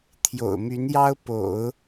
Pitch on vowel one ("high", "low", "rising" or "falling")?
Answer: low